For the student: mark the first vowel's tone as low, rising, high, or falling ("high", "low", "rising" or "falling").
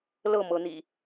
falling